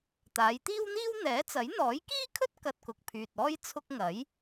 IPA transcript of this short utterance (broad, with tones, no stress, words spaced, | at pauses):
t̪aː˨˧jt̪iː˥wn̪iː˥w n̪ɛː˨˥t͡sɐ˨˥j n̪ɔː˨˥jkiː˥kʰɵ˥t̚ kɐ˧t̚kʊ˨k̚pʰyː˨t̚ ɔː˥j t͡sʰʊ˧k̚ ŋɐ˨˥j